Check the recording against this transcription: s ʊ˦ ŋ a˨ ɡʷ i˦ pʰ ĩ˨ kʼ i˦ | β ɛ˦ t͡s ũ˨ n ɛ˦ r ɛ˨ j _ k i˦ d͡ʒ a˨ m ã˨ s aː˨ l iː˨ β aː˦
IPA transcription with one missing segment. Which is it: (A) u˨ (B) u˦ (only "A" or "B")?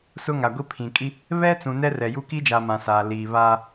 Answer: B